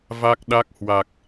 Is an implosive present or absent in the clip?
present